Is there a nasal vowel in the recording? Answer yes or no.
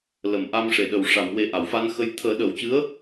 no